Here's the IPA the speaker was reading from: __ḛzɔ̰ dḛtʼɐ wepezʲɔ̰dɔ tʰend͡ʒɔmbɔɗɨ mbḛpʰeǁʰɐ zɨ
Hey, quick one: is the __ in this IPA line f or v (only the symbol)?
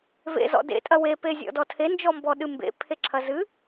v